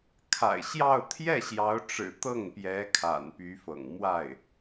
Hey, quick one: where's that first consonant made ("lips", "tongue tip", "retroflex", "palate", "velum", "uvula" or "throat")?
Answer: velum